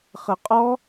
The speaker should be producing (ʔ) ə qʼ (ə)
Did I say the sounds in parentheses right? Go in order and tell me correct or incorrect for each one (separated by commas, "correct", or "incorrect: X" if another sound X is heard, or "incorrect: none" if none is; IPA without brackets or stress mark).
incorrect: χ, incorrect: ɔ